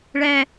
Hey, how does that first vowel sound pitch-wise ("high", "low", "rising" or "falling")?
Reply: low